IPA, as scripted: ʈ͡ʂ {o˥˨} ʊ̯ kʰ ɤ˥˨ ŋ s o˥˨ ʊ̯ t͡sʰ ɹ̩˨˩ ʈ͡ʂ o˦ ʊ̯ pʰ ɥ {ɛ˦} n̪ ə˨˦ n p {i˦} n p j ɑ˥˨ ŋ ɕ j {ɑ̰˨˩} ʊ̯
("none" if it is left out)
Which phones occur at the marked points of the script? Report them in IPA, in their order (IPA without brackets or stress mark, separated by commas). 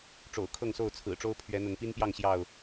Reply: o̰˨˩, ɛ˨˦, i˦, ɑ˥˨